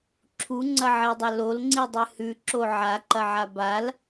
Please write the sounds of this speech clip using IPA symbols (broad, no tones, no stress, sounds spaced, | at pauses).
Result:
ǁʰ u ŋ͡ǀ ɐ ʕ e dˤ ɐ l o l ŋ͡ǀ i dˤ ɨ h ʉ ǁ o ʕ a ǃ ɐ ʕ a b a l